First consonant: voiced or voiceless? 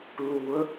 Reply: voiced